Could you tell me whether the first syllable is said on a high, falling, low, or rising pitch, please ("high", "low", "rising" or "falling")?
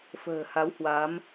low